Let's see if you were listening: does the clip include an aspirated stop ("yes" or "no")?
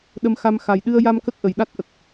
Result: no